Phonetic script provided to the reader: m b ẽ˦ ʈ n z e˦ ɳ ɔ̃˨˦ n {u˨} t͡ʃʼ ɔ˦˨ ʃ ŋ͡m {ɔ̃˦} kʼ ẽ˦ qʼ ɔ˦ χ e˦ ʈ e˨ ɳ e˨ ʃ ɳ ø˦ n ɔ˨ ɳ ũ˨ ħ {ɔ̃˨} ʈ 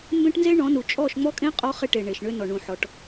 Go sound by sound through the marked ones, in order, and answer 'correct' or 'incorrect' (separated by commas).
correct, incorrect, incorrect